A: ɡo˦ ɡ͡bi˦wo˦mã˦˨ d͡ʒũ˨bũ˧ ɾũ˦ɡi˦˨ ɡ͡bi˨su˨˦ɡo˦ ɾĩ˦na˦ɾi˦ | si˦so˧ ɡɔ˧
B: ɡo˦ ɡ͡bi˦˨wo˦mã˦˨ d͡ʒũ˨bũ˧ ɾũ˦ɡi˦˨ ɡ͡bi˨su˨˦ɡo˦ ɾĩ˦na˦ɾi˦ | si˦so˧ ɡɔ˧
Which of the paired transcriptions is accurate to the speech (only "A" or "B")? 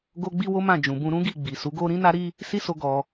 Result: A